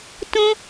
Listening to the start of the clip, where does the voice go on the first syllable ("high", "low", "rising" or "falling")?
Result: high